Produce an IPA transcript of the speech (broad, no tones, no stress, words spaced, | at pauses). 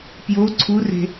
pjo ǀʰure̤